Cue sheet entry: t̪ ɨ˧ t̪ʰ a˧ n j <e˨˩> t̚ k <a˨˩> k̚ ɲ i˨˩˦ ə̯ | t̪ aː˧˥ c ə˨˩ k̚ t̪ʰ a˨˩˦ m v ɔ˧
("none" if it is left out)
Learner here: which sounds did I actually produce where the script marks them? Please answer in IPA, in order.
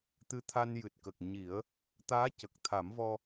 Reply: ɨ˨˩, ə˨˩

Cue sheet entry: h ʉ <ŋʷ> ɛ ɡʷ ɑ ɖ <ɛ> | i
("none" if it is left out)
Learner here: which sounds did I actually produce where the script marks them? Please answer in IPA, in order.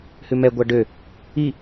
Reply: m, ø

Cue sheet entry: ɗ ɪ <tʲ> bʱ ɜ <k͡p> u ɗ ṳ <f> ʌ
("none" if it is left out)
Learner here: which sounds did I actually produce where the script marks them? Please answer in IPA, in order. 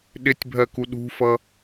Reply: tʲ, k, f

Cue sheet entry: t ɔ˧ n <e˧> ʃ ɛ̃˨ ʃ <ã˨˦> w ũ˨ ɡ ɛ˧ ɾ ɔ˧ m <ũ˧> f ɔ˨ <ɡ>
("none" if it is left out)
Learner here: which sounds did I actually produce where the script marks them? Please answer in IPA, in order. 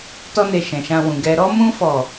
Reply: e˨, ã˧, ũ˧, none

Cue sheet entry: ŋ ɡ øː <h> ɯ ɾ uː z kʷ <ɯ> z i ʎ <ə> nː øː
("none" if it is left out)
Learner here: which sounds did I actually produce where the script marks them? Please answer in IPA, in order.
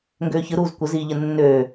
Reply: ç, ə, ə

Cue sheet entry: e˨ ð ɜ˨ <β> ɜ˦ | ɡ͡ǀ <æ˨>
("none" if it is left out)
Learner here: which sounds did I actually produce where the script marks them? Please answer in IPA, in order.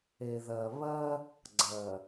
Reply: β, ɜ˨

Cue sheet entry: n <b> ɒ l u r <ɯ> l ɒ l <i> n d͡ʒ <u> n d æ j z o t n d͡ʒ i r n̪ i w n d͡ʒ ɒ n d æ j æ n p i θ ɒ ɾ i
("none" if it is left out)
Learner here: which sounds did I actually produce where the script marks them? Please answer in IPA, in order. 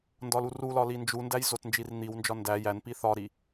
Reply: d, u, i, u

